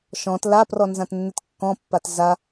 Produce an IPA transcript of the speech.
ʃ ɔ̃ t l a p r ɔ n z ã t nː ɪ t kː ɔ̃ pː a t z a

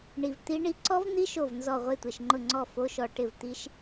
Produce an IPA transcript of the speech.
ɳ i˧ v t̪ i˦˥ ɳ i˦˥ ǀ ɔ˦˥ v n̪ i˦˥ ʃ o˥˩ v n z ɔ˥˩ ʁʷ e˥˩ tʷ e˧ ʃ ŋ͡ǃ ʊ˥˩ ŋ͡ǀ ɔ˥˩ f o˦˥ ʃ ɔ˧ ʈ ɪ˥˩ v t̪ i˦˥ ʃ

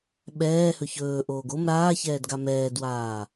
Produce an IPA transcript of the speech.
ɓ ɛː h ɵ ç ɵː ʔ oː ɡ o m ɾ aː ç ɛː d ɡ a m ɛː d w aː

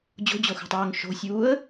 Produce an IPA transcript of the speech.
d͡ʑ o̤ d͡ʑ o x ṳ tˤ oː ŋ ʃ o̤ sʲ uː ə̯

